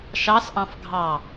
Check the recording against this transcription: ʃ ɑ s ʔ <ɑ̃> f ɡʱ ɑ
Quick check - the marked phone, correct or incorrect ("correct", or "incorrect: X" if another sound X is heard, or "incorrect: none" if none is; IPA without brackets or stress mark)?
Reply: correct